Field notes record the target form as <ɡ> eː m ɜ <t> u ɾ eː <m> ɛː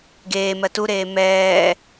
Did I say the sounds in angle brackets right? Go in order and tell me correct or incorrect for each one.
correct, correct, correct

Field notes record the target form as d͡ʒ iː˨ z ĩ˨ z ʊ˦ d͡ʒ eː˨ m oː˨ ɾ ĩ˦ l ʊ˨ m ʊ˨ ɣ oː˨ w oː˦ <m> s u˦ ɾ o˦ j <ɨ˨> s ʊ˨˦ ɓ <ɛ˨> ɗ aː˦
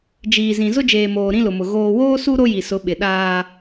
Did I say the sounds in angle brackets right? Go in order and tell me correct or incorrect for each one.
incorrect: none, incorrect: i˨, incorrect: ɪ˨

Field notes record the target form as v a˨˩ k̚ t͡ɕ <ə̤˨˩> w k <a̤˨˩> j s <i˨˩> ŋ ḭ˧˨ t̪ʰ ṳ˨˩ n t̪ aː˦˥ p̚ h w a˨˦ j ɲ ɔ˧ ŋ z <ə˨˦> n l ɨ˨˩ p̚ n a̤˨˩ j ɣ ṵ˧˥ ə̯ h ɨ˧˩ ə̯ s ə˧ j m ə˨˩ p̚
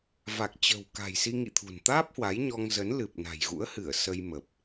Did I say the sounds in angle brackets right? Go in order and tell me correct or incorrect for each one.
correct, correct, incorrect: i˧, correct

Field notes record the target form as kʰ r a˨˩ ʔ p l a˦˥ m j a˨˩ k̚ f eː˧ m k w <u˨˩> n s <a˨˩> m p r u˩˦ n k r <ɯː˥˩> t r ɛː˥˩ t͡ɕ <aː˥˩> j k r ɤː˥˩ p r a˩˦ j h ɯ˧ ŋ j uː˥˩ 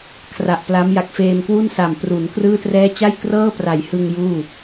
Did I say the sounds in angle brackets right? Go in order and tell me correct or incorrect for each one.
incorrect: u˥˩, correct, correct, incorrect: a˥˩

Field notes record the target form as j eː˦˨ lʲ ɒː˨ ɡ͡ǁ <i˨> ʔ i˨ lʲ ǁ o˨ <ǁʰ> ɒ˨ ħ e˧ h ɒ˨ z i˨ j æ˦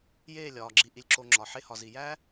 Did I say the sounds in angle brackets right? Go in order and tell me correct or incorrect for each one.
correct, incorrect: ŋ͡ǁ

